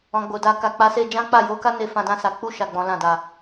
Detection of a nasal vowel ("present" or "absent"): present